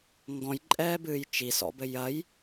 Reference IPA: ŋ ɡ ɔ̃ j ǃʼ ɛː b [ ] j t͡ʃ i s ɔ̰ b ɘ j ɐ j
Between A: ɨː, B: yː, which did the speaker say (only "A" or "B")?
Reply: A